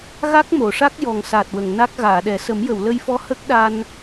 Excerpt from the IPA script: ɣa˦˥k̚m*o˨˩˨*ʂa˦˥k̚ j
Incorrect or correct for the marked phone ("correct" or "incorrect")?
correct